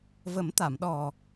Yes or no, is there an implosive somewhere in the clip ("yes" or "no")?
yes